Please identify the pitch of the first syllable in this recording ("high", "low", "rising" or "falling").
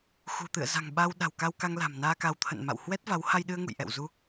low